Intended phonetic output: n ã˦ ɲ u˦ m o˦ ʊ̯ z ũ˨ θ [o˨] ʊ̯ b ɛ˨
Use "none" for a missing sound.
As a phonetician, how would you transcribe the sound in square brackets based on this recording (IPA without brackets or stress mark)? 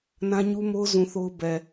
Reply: o˦